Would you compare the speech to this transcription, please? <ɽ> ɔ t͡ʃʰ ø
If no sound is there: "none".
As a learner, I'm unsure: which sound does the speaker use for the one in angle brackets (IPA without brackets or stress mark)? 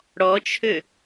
ɽ